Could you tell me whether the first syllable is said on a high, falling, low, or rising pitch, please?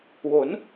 rising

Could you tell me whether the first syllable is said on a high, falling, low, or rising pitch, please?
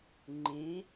rising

